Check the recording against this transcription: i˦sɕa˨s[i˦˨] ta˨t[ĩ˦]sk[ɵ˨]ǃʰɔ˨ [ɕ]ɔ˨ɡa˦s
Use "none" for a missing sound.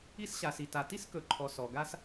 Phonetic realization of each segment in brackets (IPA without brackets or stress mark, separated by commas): i˨, i˦, ɵ˨, s